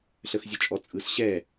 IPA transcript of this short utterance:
ɬ ə x zʲ ɔ t͡ʃʼ ɔ t͡sʼ ɯ s ɕ ɛ

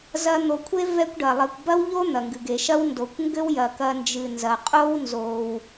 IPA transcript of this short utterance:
z ɐ˦ n̪ o˨ kʷʰ e˥ v ɛ˦ kʷ ɖ ɐ˩ lˠ ɘ˨ kʷ b ɐ˥ w ʎ o˥ n̪ ɐ˩ ŋ ɡ ɨ˩ ɡ e˩ ʃ ɐ˥ w n d o˩ kʷ ŋ ɡ ɘ˥ w j ɐ˩ k ɐ˨ n d͡ʒ ɨ˩ n z ɐ˩ qʼ o˦ w n z o˩ w

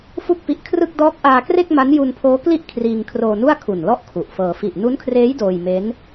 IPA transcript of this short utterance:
f u˥˩ k̚ p i˦˥ ʔ kʰ r ɯ˥˩ k̚ d ɔː˦˥ k̚ ʔ aː˧ k r e˥˩ k̚ m a˦˥ n j u˧ n pʰ oː˦˥ k l i˥˩ ʔ kʰ r iː˧ ŋ kʰ r oː˧ n u˥˩ a̯ kʰ u˨˩ n l ɔ˥˩ ʔ kʰ u˨˩ ʔ f ɤː˧ f i˨˩ ʔ n u˦˥ n kʰ r eː˦˥ j d oː˧ j m e˦˥ n

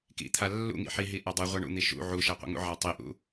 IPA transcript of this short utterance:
k ḭ t̪ʰ a lː ṵ ŋ ḭ ħ i ɦ i ʔ a dˤ ɨ ʁʷ a ɳ ṵ n̪ i ʃ ṵ ʕ u ʃ a qʷ ḭ ŋ ṵ ʕ a tˤ i ʔ ṵ

